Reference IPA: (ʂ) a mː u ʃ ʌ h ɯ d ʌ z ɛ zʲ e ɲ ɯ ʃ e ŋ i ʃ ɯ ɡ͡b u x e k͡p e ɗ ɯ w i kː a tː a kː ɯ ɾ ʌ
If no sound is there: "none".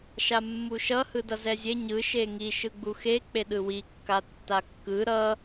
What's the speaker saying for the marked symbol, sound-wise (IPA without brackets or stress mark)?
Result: ʃ